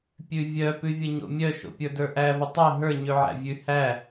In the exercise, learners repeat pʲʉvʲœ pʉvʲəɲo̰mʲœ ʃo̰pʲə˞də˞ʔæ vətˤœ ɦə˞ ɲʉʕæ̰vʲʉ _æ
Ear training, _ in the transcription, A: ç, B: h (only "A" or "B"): B